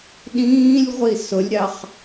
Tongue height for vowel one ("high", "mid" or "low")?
high